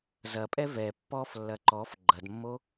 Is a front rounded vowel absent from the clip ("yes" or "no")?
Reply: yes